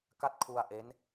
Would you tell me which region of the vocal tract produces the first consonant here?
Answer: velum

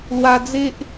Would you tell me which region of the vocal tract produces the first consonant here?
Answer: tongue tip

